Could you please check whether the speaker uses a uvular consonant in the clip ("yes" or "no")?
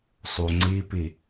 no